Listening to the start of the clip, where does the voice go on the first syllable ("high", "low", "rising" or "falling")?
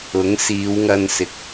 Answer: rising